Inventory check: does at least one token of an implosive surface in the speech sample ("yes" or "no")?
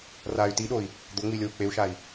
yes